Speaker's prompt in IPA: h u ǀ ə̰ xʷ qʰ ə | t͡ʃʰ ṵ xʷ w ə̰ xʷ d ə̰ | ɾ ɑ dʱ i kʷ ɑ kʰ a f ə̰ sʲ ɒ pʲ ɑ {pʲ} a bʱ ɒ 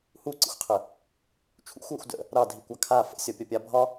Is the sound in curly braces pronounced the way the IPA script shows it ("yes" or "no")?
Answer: yes